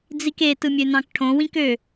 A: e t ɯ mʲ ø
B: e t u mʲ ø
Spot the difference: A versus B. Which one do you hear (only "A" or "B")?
A